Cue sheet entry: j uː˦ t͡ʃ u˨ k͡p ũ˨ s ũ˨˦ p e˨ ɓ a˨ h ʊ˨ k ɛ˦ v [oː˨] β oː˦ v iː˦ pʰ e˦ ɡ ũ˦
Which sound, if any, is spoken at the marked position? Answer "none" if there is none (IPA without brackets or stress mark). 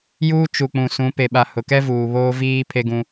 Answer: uː˨